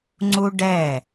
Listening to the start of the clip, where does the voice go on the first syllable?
high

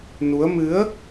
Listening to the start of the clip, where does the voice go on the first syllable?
rising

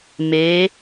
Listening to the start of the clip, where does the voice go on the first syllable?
rising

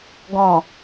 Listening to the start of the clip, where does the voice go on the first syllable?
low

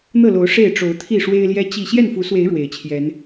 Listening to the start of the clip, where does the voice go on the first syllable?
falling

